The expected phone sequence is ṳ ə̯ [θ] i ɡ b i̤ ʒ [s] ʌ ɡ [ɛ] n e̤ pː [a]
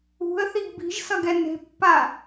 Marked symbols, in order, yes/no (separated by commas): yes, yes, yes, yes